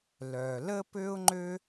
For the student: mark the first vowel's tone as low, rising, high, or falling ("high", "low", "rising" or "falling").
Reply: low